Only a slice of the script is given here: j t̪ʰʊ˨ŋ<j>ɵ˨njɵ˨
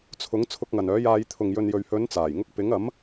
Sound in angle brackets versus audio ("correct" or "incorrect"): correct